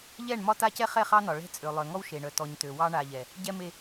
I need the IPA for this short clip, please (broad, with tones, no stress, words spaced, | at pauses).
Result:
ʎɛ˦˨ɳ mɒ˦ta˦cɛ˦ χɛ˦˨χɑ˦nɒ˨ ɭɛ̤˦t͡sʼø˨ lˠœ˨ŋɔ˦wʃe˨ɳœ˨ tɔ˨ɲtø˨ wɑ˦ɳa˨ʎɛ˨ | ɟɛ˦me˦